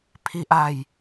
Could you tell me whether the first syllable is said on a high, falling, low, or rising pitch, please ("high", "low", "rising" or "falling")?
low